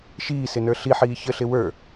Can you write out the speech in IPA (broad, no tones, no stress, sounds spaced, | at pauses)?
ʃ iː s ɪ n ə˞ ɬ i ħ iː ç ə ɬ ɪ w ə˞